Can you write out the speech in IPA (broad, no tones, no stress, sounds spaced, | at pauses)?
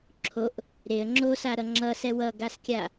ǁʰ o ʔ | ɾ e ə̯ ŋ͡ǁ o s a ɾ ʌ ŋ͡ǁ ʌ s ɛ w ʌ ɡ a s kʲ a